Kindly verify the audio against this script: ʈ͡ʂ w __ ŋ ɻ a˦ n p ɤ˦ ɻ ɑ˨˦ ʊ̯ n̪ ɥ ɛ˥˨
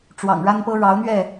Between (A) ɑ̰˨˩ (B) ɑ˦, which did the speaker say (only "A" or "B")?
A